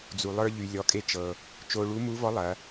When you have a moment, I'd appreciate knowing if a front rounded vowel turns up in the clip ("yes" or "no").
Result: yes